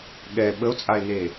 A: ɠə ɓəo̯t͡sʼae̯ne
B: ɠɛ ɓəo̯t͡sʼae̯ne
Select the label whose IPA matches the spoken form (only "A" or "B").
B